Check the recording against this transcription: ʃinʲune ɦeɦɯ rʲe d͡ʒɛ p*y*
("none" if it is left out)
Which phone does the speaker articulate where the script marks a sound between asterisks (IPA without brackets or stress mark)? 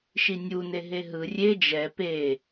e